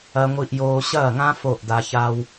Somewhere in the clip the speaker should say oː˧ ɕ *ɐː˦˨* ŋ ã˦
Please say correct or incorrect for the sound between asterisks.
correct